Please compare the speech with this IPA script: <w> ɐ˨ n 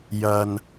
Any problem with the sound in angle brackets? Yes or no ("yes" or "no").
yes